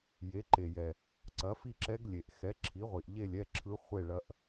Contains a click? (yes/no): yes